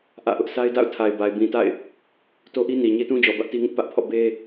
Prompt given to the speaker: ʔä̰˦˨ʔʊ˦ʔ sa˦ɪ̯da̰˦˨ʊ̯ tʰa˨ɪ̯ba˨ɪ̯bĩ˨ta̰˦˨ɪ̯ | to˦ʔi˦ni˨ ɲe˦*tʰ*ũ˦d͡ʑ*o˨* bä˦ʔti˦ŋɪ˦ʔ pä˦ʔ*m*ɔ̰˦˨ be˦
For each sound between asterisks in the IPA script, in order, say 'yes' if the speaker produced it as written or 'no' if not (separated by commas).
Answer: no, no, no